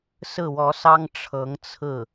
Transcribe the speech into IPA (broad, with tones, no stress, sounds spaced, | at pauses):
s ɹ̩˥˩ w ɔ˧˥ s ɑ˥ ŋ ʈ͡ʂʰ ɤ˧˥ ŋ t͡sʰ ɹ̩˥˩